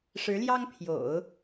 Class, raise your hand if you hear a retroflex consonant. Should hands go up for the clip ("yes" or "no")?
yes